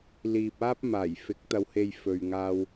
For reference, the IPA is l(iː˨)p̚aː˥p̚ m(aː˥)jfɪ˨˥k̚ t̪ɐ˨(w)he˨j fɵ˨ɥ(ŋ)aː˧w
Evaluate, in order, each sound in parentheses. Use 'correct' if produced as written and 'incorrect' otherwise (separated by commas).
correct, incorrect, correct, correct